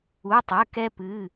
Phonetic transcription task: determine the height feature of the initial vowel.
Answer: high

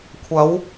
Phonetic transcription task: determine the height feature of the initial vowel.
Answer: low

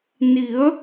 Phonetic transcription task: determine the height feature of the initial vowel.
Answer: high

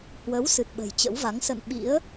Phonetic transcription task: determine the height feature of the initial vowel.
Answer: mid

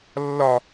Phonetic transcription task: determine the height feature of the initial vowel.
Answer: low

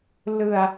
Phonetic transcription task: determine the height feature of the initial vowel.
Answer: high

